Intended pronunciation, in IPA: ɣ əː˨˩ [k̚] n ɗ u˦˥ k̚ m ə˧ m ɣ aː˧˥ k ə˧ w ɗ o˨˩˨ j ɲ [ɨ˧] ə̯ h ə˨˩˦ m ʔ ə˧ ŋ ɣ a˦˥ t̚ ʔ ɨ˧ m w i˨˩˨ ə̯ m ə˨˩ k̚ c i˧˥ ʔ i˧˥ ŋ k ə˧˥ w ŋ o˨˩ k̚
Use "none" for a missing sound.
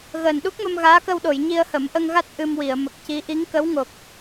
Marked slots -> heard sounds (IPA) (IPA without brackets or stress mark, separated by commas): none, i˧